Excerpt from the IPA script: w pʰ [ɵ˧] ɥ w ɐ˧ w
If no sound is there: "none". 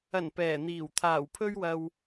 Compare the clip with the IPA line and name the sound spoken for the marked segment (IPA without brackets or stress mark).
ɵ˥